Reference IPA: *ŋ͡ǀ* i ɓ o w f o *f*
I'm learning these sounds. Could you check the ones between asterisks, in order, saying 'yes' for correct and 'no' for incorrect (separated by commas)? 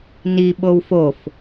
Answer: no, yes